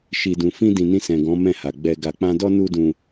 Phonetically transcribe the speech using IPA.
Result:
ʃ i˨ d ũ˨ f ĩ˧ d ĩ˨ n ĩ˧ s ɛ̃˨ ɡ ɔ̃˨˦ m ɛ̃˦˨ h a˨ ɡ͡b ɛ˧ ɡ a˨ k͡p ã˧ d ɔ˦ n u˦ d ũ˧

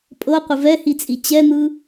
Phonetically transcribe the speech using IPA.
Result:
pʼ ɤ qʷ ə v ɛ h i t͡sʼ i t͡ɕ ɛ n̪ ɯ

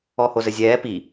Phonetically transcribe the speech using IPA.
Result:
ɔ h o z ɘ zʲ ɛː p i

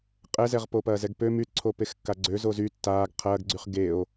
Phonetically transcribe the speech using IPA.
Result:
qʼ ɛ z ɛ ʁ p o p ɐː z ɛ ɡ p ø m y t ǀʰ o p e x kː a ɡ͡ǀ ø z o z y tː aː ɡ qʰ ɐː ɡ ɡ͡ǀ y χ ɡ e o̯

